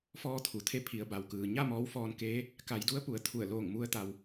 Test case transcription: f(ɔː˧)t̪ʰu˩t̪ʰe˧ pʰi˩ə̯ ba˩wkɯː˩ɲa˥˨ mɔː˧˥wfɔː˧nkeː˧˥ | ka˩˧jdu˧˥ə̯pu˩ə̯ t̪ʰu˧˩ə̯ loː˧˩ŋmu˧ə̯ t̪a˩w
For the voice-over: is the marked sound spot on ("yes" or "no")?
yes